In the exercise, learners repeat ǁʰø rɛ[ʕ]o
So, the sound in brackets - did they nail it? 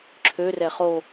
no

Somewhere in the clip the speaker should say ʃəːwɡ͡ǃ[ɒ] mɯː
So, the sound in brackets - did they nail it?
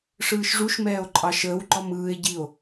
yes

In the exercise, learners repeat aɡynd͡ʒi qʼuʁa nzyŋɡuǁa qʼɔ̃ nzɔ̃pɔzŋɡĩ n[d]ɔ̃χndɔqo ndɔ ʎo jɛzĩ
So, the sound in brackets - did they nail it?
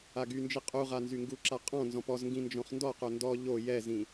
no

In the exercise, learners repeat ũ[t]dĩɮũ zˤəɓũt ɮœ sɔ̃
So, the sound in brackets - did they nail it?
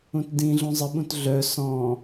yes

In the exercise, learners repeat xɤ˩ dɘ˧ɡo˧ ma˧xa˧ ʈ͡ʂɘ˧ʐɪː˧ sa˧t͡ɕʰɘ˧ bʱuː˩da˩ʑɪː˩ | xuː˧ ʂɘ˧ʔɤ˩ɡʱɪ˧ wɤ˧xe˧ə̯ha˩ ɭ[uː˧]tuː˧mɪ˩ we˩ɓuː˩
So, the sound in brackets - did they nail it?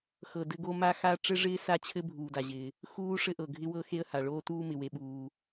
no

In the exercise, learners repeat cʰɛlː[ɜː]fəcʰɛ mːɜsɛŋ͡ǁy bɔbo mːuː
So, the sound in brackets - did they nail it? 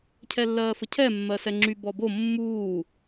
yes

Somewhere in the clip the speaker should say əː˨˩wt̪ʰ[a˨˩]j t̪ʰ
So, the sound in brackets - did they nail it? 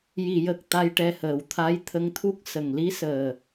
no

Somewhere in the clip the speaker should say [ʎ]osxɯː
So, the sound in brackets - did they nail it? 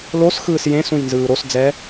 no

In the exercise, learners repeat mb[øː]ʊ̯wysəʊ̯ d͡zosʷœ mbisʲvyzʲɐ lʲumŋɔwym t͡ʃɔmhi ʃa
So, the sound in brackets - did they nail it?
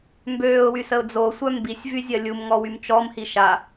yes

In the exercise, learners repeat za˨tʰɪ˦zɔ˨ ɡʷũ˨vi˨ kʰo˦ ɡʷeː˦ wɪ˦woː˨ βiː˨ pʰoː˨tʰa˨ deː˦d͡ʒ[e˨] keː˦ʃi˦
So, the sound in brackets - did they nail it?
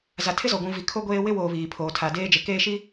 yes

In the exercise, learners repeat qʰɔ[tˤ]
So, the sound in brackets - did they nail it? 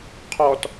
no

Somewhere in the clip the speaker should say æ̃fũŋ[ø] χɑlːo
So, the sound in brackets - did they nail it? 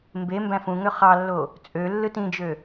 yes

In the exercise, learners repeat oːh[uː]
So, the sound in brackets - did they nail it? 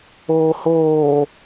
no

